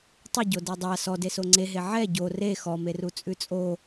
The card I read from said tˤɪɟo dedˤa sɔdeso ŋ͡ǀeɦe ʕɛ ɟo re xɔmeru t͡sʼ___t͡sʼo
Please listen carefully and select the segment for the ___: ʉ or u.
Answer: ʉ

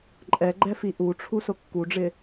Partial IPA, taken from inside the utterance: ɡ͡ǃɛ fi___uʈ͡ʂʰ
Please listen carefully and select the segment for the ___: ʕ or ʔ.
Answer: ʔ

